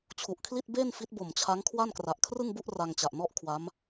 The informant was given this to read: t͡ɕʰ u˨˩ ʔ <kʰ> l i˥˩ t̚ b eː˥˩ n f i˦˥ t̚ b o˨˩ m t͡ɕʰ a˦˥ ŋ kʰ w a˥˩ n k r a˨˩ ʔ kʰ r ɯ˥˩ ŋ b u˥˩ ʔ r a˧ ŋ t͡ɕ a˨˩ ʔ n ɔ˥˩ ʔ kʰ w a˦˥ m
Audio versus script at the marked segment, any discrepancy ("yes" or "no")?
no